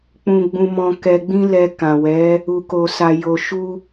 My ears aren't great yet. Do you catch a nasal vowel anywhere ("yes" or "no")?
yes